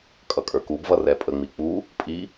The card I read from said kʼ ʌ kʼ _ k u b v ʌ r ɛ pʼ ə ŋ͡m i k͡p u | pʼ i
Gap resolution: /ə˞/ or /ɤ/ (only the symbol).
ə˞